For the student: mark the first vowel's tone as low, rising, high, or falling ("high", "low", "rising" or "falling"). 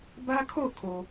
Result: high